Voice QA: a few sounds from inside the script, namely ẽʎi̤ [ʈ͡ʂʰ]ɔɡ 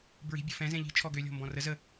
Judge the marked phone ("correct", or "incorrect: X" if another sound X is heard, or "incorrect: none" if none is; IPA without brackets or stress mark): incorrect: t͡ʃʰ